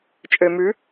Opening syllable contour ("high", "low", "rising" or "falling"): low